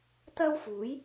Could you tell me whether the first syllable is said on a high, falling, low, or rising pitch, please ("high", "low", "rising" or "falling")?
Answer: high